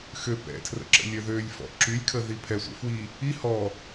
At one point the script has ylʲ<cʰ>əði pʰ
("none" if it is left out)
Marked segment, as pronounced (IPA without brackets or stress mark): kʰ